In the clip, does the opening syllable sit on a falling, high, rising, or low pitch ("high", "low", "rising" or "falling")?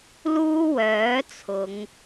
high